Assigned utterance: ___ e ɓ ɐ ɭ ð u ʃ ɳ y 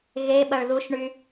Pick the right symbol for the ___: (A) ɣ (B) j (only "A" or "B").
A